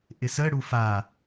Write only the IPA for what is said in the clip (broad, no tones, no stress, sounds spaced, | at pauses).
ʔ ɪ s ə ɽ u f a